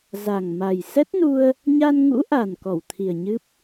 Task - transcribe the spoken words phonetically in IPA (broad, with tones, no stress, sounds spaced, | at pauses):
z a˨˩ ŋ m a˨˩ j s ɛ˦˥ t̚ n u˧ ə̯ | ɲ a˧ n ŋ ṵ˧˥ ʔ a˨˩ n k ɔ˧˩ w t̪ʰ i˨˩ ə̯ ɲ ɨ˦˥ p̚